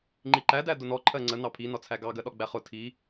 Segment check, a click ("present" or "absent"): present